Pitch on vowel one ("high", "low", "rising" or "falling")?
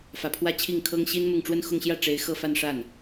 low